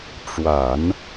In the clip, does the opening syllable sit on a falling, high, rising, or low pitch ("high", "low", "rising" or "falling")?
low